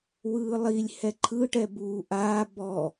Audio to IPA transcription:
w ɯː lˠ i lʲ h ɛ ǃʰ ɯ ʈ ɛ b uː ʔ aː b ɔ

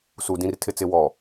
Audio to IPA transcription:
s u˨ d ĩ˨ r tʰ ɪ˨ t͡s ɪ˨ w ɔ˨

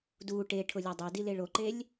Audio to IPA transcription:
d u ʈ e ʈʰ ʊ lʲ a dˤ e d i l e ɭ o ǃ e lʲ

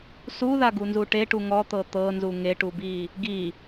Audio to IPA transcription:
s u ð a ɡ u n z u ʈ e ʈ u ŋ ɔ t̪ ɤ t̪ ɤ n z u ŋ e ʈ u b i | ɡ i

